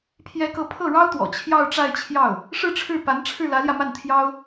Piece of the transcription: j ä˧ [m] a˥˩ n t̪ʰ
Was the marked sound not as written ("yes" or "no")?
no